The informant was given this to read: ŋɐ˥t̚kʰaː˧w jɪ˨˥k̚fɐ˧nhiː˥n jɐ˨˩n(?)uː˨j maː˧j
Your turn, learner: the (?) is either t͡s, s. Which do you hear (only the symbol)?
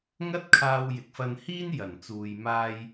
t͡s